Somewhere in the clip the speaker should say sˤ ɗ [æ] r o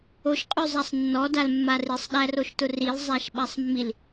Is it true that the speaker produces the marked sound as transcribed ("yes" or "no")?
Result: yes